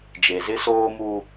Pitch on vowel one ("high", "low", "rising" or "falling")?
low